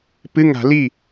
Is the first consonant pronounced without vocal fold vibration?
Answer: yes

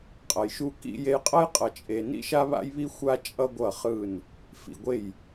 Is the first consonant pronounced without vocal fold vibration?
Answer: yes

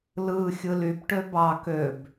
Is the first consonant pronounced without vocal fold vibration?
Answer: no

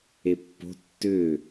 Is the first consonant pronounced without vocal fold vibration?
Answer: yes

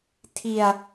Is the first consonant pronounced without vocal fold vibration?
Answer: yes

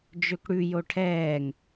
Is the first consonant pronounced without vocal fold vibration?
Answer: no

